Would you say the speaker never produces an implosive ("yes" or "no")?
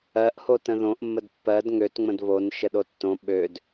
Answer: no